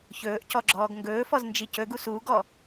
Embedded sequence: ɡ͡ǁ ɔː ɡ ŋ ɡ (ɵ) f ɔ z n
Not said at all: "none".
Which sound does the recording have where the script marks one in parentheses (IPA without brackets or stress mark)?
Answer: ɵː